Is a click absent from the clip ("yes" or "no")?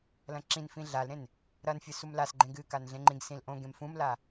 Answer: no